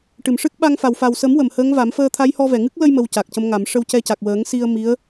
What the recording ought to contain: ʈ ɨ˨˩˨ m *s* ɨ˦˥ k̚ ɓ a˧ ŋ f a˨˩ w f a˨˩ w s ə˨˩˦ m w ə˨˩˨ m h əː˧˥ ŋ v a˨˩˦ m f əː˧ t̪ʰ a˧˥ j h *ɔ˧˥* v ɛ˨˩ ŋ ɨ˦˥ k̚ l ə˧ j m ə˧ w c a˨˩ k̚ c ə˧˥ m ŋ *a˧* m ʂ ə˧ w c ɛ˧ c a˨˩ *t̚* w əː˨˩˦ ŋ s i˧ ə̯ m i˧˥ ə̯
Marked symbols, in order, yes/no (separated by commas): no, no, no, no